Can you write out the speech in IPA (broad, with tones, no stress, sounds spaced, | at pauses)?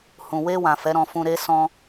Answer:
h ũ˨ w e˧ w ã˨ f ɛ˨˦ ɾ ɔ̃˧ f ũ˧ ɾ e˦ s ɔ̃˧